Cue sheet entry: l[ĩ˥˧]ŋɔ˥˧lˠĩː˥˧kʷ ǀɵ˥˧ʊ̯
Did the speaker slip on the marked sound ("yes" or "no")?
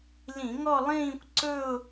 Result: yes